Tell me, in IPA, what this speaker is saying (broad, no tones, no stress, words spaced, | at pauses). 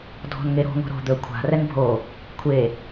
dʱɔ̤nŋeɾo̤ ŋo̤ɾo̤ d̪ɵ kʷʰa̤ rɛnbʱo | kʷʰe